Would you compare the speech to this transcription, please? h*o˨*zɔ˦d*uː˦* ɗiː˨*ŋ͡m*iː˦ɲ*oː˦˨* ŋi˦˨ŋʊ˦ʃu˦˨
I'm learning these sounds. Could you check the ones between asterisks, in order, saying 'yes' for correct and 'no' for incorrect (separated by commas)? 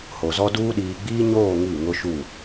yes, yes, no, yes